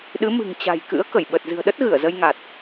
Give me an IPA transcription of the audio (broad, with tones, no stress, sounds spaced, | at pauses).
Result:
ɗ ɨ˨˦ m ɨ̤˨˩ ŋ t͡ɕ a̤˨˩ j k ɨ̰˧˥ ə̯ k ə˧˩ j ɓ ə˨˩ t̚ z ɨ̤˨˩ ə̯ ɗ ə˦˥ t̚ ɣ ɨ˧˩ ə̯ z ə˧ j ŋ a˨˩ t̚